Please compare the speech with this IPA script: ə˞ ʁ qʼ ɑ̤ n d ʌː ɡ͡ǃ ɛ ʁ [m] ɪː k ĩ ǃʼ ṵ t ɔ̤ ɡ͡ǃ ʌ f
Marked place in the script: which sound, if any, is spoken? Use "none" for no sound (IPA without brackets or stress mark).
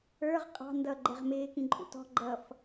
m